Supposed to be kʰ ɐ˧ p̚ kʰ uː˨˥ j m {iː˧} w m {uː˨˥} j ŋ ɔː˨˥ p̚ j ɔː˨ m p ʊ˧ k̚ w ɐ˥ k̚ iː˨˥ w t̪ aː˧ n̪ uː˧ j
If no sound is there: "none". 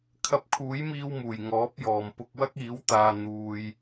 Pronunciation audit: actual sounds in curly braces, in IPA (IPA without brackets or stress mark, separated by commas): iː˧, uː˨˩